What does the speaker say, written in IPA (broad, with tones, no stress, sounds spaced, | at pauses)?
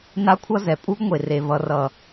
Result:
n a˦ kʷʰ ʌ˦ z ɛ˨ pʼ u˦ ɡ ŋʷ e˨ r e˨ v ʌ˨ r ʌ˨